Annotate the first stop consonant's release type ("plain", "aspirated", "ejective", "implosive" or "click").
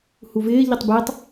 plain